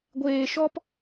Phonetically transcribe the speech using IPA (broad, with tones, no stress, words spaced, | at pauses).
ɡʷeː˧ʃɔ˦p